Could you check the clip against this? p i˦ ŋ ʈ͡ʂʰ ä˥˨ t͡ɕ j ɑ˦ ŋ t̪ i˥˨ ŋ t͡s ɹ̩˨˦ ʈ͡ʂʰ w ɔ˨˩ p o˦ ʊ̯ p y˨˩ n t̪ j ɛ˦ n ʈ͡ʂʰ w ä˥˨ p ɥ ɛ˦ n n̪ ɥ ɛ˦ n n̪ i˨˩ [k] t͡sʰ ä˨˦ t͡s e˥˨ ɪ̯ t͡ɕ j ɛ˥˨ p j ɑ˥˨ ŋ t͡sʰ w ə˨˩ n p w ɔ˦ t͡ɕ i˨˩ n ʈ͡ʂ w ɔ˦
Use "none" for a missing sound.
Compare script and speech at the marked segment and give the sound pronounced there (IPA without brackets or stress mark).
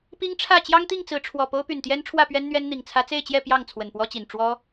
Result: ŋ